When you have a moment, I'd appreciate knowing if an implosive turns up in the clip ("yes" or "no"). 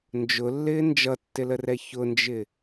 no